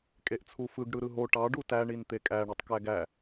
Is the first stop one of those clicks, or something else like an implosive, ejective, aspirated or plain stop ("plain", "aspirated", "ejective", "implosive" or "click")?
ejective